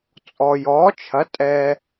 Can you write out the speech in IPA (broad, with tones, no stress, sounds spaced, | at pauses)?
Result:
t͡sʼ ɔ˨ j ɔː˨˥ t͡ʃʰ ɐ˨˥ tʼ ɛ˨